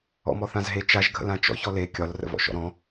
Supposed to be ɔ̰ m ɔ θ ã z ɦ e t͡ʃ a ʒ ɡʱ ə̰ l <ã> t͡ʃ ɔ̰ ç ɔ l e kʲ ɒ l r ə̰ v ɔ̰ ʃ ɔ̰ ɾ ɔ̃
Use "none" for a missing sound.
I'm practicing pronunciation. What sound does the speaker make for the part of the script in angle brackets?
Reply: ã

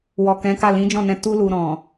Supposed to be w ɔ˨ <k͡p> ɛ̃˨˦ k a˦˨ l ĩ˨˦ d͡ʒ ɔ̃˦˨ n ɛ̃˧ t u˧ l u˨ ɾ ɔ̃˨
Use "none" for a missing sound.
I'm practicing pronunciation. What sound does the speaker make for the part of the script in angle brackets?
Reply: k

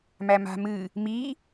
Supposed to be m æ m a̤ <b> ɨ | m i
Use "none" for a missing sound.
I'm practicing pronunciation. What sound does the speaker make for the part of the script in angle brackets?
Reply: m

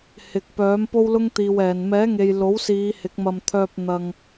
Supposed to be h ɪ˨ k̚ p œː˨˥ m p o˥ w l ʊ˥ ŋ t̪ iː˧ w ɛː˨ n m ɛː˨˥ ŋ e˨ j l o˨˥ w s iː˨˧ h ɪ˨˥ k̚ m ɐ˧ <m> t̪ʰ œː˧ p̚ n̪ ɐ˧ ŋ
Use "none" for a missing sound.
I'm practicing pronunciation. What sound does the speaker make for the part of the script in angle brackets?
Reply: m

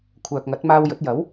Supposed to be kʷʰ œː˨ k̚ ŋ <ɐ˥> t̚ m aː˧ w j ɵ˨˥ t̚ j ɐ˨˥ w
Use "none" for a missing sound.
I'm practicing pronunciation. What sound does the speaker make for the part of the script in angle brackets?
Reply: ɐ˨˥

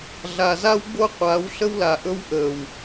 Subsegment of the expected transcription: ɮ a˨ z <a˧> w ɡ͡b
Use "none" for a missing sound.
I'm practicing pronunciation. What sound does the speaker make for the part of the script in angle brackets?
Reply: a˦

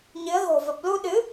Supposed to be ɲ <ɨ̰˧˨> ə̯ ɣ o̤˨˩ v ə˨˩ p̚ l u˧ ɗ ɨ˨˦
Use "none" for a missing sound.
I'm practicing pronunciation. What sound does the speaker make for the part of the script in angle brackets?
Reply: ɨ˨˦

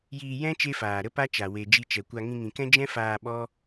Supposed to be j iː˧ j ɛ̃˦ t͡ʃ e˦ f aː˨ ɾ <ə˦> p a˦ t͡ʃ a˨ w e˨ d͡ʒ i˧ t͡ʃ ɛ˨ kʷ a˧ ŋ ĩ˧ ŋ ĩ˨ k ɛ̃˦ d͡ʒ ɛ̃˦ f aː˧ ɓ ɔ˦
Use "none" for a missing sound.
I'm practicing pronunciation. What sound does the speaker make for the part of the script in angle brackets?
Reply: ə˦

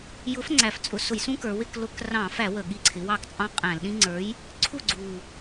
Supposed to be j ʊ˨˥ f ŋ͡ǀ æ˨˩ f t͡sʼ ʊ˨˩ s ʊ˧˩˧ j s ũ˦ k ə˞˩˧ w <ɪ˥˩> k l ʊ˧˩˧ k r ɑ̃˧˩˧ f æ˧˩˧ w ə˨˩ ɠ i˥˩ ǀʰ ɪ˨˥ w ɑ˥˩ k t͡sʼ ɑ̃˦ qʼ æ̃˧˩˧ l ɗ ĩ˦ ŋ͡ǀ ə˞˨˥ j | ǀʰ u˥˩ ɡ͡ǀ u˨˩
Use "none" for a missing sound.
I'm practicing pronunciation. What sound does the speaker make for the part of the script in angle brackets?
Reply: ɪ˥˩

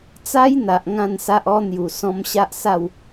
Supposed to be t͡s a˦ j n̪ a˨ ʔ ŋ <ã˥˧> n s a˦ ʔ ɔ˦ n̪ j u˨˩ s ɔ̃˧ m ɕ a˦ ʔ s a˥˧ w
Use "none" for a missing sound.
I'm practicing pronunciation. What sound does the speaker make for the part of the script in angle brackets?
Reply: ã˥˧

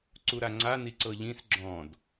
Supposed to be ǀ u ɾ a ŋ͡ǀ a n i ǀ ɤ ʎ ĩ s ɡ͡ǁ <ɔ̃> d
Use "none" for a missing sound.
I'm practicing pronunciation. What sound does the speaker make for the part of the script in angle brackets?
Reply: ɔ̃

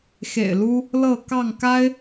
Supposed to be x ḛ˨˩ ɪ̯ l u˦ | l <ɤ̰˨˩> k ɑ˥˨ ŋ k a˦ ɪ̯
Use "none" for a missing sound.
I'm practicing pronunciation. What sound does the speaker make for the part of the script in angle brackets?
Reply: ɤ˥˨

